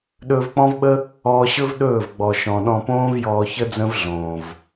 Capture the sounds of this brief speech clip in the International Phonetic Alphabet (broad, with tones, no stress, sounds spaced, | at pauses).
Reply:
ɗ ɵː˧ v k͡p ɔ̃˦ v ɓ ə˦ | ɔː˧ ɕ ɵ˦ v ɗ ɵː˦˨ v ɡ͡b ɔ˨ ʃ ɔ̃˨ ɗ ɔ̃˧ p õː˦ v j ɔː˧ ç ə˦ d͡z ə̃˦ v ɮ õː˨ v